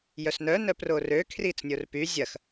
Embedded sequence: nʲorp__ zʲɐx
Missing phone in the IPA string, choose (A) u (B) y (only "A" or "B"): B